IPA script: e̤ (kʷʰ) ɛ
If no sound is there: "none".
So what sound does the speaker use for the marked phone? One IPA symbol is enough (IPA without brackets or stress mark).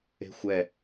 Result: xʷ